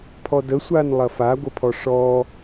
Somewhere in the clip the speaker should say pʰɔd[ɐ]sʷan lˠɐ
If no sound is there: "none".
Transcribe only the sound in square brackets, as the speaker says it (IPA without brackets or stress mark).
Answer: ə